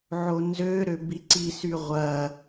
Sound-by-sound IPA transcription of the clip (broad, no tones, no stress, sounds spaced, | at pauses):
ʕ o n z ø ɾ ø b i ǀ i s y ʁʷ ɐ